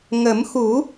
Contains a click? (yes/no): no